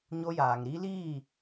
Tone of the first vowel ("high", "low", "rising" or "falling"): high